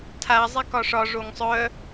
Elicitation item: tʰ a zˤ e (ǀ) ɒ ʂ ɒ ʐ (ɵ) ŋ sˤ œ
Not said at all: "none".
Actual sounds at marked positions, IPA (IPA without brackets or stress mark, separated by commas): k, o